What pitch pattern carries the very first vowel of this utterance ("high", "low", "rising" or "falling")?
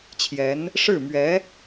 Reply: rising